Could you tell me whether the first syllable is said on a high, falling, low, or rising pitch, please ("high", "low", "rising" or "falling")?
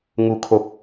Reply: low